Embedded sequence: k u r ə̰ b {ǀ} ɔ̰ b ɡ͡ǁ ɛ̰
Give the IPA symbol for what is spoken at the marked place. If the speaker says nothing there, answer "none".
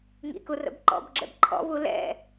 ǃ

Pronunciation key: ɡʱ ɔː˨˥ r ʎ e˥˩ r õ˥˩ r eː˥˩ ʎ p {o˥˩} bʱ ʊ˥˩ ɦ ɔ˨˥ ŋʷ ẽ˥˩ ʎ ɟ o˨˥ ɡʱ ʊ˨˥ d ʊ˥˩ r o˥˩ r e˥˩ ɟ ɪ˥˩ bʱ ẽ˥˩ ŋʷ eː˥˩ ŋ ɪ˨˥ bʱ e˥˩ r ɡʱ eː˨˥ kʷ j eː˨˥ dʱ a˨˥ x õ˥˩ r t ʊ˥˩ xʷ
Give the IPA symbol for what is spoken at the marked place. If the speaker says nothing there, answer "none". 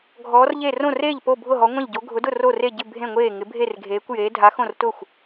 o˥˩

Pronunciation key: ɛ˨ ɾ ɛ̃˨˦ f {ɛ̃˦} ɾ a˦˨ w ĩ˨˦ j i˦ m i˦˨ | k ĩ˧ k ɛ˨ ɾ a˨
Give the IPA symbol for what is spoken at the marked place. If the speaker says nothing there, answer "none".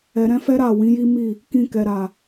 ɛ˦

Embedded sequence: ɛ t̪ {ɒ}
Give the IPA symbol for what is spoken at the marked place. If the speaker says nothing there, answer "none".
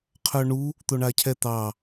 ɑ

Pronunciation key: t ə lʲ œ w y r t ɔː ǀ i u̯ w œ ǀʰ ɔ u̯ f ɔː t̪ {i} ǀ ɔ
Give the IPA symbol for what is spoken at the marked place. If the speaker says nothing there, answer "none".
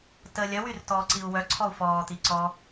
i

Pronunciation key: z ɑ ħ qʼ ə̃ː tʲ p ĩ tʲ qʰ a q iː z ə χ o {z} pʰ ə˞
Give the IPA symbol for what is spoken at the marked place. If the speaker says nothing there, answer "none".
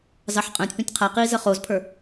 z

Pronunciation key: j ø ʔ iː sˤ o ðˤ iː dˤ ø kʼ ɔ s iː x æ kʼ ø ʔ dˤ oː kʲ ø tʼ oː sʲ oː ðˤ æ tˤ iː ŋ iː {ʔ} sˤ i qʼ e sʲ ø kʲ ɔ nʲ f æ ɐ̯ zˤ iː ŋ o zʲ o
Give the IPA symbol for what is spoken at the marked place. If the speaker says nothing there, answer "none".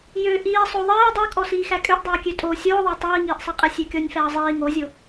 ʔ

